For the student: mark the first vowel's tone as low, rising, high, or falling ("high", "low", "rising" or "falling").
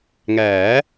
rising